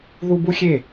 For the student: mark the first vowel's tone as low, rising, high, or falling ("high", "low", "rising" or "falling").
high